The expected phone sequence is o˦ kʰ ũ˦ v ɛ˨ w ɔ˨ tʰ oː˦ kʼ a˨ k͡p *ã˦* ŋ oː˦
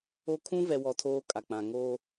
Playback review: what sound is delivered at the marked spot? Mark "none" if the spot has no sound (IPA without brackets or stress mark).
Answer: ã˨